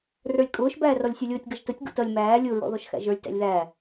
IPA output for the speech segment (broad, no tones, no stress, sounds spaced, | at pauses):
r ə˞ lʲ kʼ ʊː ʃ b æː r ɔ lʲ sʲ u lʲ ʊː tʲ ɡ ʌ ʒ t ʊ tʲ ɡ ṵ t ʌ lʲ m æː lʲ ʊ ɹ ɔ̰ ð ɔ ʃ x æ̰ ʒ ə˞ lʲ t æ̰ lʲ ð æː